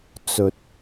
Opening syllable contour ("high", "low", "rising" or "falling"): low